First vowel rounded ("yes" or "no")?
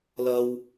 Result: no